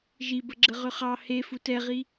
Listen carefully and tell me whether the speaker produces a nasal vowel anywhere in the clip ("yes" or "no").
no